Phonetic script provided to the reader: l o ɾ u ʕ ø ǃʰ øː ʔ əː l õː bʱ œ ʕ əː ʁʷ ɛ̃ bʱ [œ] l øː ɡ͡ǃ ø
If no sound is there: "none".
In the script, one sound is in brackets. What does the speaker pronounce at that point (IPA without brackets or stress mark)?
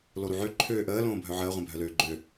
œ